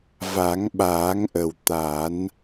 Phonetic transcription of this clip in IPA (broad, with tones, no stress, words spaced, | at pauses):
va˨˩˦ŋɓaː˨˩˦ŋʔə˨˩w t̪a˨˩˦n